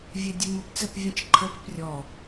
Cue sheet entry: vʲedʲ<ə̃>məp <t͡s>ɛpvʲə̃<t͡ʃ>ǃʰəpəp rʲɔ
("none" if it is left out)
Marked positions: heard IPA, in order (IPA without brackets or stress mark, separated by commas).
ə, t͡s, t͡ʃ